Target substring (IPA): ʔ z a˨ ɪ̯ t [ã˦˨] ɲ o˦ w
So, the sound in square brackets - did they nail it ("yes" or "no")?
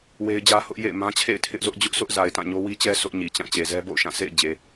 yes